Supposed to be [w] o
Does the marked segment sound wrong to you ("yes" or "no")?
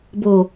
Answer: yes